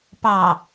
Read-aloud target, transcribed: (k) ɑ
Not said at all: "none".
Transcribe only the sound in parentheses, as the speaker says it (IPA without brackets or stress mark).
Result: p